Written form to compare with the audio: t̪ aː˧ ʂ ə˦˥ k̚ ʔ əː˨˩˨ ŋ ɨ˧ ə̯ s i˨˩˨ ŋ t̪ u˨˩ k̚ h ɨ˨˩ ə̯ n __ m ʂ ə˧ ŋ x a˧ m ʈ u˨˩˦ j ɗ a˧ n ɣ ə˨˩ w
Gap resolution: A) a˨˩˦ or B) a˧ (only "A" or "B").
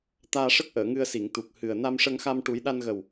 B